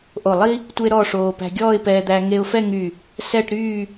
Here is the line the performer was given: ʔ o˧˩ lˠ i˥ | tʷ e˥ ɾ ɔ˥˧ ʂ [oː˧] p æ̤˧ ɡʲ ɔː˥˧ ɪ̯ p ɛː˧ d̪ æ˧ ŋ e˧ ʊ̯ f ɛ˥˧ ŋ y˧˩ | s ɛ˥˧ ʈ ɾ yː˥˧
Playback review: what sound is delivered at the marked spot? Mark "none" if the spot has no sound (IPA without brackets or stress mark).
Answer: oː˧